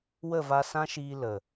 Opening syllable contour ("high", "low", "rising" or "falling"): falling